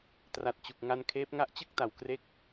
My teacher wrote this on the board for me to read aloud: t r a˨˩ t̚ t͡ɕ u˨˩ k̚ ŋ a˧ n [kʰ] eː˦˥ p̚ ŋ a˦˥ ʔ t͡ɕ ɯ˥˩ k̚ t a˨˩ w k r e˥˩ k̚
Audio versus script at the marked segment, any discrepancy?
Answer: no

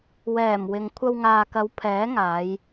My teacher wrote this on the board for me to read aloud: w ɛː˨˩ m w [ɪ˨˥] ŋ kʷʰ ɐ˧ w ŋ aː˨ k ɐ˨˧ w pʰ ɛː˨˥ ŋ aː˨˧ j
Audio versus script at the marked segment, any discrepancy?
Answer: yes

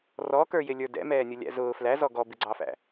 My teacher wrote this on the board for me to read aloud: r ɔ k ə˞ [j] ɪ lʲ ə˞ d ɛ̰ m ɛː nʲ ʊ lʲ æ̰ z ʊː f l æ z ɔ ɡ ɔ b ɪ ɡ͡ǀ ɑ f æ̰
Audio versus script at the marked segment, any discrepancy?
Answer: no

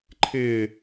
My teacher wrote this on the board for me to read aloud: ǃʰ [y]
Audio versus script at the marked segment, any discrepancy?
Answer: yes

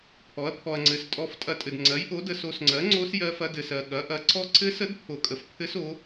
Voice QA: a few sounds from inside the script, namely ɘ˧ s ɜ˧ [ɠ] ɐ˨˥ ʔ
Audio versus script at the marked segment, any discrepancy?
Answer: no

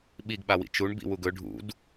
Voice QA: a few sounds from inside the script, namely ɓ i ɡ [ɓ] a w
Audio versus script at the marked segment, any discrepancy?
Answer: no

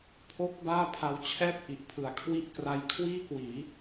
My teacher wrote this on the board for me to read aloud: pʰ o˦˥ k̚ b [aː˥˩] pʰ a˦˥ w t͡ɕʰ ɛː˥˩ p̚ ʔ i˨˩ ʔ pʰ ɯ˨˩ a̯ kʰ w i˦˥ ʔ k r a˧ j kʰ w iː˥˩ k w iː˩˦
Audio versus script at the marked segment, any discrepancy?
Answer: no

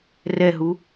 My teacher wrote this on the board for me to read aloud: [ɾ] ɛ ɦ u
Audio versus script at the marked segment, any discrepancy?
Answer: yes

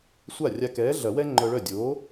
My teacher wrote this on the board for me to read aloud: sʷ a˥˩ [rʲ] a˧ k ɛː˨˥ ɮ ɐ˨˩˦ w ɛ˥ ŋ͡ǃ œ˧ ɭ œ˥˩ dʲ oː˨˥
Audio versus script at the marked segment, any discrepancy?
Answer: no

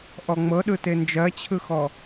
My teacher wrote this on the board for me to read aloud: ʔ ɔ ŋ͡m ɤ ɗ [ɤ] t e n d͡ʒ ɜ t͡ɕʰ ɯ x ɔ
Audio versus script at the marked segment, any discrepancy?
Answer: yes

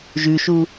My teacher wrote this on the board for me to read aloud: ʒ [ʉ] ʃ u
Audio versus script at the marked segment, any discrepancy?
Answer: no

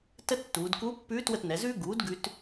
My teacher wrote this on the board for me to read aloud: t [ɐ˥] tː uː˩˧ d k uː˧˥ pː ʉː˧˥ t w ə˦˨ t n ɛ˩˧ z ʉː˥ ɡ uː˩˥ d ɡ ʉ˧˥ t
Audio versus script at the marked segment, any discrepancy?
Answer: yes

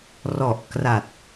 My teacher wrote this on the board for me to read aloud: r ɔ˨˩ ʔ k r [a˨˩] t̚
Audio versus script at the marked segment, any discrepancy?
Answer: no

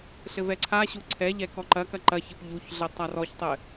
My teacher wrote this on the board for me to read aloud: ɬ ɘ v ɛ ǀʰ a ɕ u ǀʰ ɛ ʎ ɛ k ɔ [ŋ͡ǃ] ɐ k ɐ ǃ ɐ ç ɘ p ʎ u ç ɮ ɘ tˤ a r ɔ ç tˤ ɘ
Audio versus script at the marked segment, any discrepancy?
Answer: yes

